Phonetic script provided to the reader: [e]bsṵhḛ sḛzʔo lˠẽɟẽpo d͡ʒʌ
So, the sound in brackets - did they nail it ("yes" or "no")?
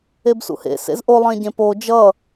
yes